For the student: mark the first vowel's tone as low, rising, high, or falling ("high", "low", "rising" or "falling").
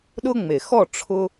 high